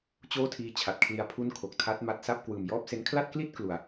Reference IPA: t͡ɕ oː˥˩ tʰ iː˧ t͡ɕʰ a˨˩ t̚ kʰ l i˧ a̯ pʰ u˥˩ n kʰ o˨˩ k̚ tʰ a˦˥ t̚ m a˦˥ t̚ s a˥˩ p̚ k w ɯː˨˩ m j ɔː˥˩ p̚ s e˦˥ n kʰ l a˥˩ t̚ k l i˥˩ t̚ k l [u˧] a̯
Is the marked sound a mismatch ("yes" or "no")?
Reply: yes